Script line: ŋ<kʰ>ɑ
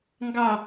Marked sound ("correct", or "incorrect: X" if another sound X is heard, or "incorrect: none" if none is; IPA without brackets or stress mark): incorrect: ɡ